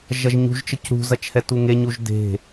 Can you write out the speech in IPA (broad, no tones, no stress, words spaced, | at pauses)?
ʒɐʒɲṳʒ t͡ʃəcɾṳ zɐt͡ʃhɛtuŋe ɲuʒde̤